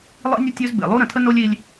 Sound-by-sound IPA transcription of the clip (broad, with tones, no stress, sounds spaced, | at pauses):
lˠ ḭ˦ nʲ ə˦ tʲ ø˦ z b ḛ˨ lˠ u˦ ɾ ə̃˨ tʰ ə˦ n o˦ lʲ i˦ lʲ